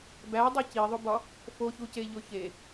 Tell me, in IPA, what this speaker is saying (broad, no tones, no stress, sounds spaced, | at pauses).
b æ dˤ e c i ðˤ o b ɒ | f o ç u c e ʎ o ç e